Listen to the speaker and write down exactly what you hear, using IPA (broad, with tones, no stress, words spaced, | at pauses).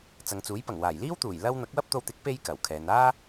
t͡sɐ˨ŋt͡suː˨˥jpɐ˨˩ŋ waː˨˩jliː˥wt̪uː˨˩j lɐ˥w n̪ɐ˨˥k̚wɐ˥p̚t̪o˧wt̪ɪ˨˥k̚ pe˥j kɐ˨˩wkʰɛː˨˧n aː˥